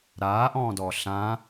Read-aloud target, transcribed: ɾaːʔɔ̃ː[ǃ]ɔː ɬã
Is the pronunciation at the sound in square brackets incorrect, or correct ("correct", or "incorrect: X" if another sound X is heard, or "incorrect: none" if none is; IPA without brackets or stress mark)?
incorrect: d